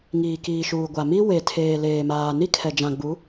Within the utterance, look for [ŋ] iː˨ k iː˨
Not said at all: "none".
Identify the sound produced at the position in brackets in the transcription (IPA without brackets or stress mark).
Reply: ŋ